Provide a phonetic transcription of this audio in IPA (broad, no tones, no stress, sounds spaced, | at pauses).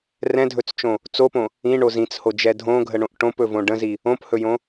r ɛ̃ dʱ ɵ t͡s t͡ʃ õ | t͡s o p õ | ĩ ɳ o z ĩ t͡s h o d͡ʒ ɛ dʱ õ ɡʱ ə ɳ õ ʔ ʈ õ p ɵ v õ ɖ ə̃ z i | õ p h ɵ j õ